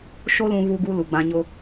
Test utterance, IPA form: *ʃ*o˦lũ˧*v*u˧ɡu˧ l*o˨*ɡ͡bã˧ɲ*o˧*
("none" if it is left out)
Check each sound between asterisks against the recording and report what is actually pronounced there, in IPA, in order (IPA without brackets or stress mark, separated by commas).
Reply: ʃ, v, u˨, o˦